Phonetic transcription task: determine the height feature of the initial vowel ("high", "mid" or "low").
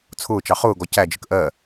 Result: high